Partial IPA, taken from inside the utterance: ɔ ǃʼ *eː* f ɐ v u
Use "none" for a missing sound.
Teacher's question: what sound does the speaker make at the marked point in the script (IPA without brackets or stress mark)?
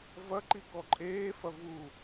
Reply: eː